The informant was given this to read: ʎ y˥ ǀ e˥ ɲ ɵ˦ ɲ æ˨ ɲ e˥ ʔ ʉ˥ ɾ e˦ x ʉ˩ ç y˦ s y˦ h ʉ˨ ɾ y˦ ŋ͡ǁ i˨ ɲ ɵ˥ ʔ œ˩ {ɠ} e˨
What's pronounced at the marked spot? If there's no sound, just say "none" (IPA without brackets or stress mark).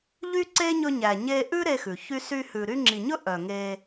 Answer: ŋ